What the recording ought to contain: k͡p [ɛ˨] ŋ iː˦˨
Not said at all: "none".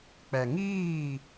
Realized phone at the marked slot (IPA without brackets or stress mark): ɛ˨